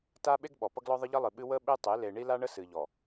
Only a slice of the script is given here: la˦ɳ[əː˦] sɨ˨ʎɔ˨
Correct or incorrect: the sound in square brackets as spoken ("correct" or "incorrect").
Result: incorrect